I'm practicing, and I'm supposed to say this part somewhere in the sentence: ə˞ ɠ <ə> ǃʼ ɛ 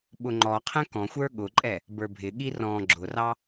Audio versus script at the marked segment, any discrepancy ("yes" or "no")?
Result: yes